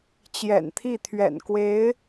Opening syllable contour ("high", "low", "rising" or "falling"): low